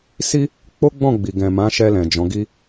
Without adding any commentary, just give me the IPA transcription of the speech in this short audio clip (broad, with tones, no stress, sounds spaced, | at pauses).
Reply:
s i˦ | k͡p o˦ ɡ͡b ɔ̃˦˨ ɡ͡b i˨ ɡ ɛ̃˨ m ã˨˦ ʃ ɛ˧ l ɛ̃˨ d͡ʒ ɔ̃˨˦ ɡ i˦